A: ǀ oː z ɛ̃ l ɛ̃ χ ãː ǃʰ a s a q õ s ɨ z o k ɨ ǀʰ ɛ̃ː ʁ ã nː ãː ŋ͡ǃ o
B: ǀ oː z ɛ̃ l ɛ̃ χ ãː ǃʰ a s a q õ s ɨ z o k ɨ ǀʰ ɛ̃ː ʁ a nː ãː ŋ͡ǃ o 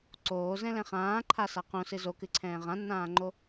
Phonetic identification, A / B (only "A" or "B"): A